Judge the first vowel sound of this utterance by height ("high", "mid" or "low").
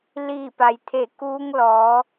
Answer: high